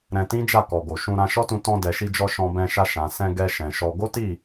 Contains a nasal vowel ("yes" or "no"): yes